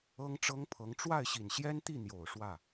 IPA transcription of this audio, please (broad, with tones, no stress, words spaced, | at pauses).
ɤ˥ŋʈ͡ʂɤ˥ŋpʰɤ˧˥ŋ ʈ͡ʂwa˥˩ɪ̯ɕi˨˩nɕjɛ˥nt̪i˥˩ n̪jo˨˩ʊ̯ʂwä˥˩